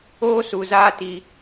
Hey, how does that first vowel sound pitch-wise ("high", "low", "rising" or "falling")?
high